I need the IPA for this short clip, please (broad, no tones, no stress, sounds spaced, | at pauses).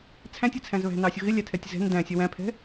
t͡sʰ æ̃ tʲ ɪ t͡sʰ æ̃ z β æ̤ n ɑ sʲ ʊ ɣ ɪ lʲ æ tʰ ɛ tʲ z ɛ̤ n d æ̃ sʲ ɛ w æ̃ pʰ ɛ̤